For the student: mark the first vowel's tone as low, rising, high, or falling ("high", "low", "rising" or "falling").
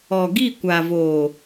low